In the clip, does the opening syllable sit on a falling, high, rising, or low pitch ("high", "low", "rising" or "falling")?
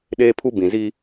high